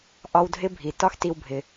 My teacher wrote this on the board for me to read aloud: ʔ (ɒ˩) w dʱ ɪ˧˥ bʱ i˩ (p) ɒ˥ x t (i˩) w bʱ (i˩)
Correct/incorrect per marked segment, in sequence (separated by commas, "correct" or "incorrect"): incorrect, incorrect, incorrect, incorrect